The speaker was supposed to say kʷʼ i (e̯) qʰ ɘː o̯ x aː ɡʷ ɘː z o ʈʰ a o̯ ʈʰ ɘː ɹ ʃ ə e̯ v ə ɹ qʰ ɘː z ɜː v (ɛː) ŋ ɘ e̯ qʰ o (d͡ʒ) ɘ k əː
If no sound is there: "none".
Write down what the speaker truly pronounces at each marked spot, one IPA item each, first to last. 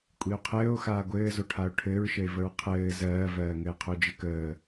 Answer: o̯, ɜː, d͡ʒ

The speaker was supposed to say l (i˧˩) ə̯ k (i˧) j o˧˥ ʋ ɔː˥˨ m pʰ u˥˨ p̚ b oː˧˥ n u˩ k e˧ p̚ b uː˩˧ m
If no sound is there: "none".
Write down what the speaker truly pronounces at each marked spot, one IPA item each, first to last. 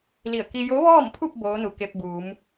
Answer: i˧˩, i˧

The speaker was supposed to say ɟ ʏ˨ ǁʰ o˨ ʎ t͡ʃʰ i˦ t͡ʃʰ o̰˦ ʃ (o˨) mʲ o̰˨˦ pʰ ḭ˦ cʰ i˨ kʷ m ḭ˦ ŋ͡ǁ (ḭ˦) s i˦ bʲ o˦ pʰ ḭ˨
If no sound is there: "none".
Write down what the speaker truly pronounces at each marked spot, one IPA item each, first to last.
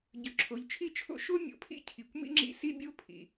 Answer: o˦, ḭ˦

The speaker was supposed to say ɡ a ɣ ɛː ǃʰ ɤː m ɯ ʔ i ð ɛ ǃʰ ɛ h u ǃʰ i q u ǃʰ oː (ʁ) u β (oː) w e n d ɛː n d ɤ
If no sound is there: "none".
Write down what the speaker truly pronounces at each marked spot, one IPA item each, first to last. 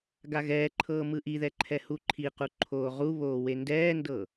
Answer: ʁ, oː

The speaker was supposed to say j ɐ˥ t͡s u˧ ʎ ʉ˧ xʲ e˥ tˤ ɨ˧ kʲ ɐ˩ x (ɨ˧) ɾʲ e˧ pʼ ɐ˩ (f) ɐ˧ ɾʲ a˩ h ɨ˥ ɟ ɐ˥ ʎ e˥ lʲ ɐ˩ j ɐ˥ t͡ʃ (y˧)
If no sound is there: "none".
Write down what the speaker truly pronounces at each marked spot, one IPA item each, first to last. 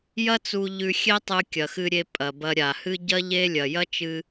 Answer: ɨ˧, b, ɨ˧

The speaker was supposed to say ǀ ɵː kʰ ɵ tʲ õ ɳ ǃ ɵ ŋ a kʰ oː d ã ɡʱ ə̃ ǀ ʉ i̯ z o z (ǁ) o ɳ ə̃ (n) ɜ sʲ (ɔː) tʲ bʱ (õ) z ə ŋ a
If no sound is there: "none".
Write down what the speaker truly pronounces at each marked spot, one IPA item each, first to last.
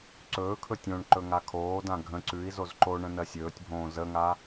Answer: ǃ, n, ɵː, õː

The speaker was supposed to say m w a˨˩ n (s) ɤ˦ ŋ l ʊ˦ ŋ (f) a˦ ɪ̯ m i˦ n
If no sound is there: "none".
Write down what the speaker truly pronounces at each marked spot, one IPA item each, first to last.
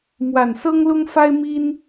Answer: s, f

